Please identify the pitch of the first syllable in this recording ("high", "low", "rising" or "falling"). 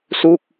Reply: falling